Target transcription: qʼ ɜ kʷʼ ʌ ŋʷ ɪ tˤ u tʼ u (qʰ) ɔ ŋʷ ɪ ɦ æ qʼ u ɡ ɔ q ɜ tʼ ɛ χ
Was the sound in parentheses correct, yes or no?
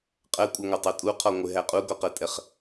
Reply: yes